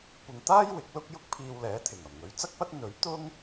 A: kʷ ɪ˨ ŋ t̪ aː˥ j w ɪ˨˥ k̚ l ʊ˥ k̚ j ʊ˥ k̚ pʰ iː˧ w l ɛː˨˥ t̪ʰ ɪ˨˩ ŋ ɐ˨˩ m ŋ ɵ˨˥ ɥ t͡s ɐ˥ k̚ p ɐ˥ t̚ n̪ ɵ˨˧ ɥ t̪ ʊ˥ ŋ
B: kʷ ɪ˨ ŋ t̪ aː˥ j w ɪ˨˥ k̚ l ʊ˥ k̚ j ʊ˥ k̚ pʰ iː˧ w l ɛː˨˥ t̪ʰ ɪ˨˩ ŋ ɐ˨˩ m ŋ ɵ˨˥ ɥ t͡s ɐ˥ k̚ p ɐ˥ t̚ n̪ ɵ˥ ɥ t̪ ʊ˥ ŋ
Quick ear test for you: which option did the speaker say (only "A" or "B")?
A